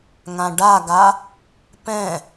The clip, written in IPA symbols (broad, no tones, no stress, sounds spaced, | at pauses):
ŋ ã ɖ a ɡ a | p ɛ̃